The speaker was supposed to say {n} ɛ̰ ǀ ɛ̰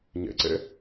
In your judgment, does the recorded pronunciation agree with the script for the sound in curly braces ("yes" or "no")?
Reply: no